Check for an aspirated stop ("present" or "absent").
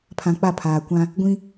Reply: present